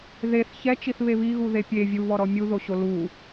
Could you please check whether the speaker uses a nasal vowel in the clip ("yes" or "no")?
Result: no